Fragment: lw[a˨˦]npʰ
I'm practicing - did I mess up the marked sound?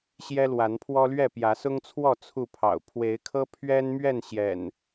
no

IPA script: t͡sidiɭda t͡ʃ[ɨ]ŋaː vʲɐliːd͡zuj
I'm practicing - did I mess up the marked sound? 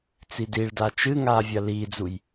no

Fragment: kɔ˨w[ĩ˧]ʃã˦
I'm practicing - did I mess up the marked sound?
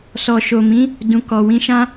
no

